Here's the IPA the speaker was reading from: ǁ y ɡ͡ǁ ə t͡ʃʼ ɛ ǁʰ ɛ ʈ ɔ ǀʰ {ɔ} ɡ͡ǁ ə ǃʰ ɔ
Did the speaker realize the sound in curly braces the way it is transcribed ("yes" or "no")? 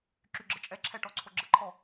no